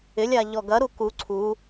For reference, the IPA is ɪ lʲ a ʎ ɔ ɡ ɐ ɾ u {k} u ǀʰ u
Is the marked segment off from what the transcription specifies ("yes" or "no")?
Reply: no